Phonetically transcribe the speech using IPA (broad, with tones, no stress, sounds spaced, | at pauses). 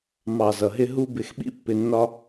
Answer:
m ɑ˨ z ʌ˨ ɦ ɪ˧ ɦ u˦ b ɪ˧ x ɓ ḭ˦ pː ɪ˧ nː ɒ˧